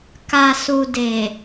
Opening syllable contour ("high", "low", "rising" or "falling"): low